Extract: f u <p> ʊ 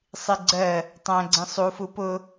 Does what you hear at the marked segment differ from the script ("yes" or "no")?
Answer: no